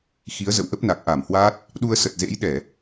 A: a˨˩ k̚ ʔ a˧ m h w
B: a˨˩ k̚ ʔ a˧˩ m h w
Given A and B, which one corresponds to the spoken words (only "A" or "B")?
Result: B